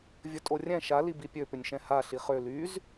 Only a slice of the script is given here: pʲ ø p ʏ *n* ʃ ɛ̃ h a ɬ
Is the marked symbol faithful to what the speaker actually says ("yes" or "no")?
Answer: no